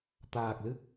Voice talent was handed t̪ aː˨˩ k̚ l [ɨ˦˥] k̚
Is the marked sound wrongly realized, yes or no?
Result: no